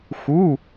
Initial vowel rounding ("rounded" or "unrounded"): rounded